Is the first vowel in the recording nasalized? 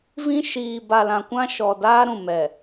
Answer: yes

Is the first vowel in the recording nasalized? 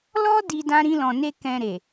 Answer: no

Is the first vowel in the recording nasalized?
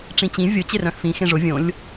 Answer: yes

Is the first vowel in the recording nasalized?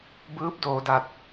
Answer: no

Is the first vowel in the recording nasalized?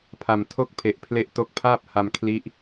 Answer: no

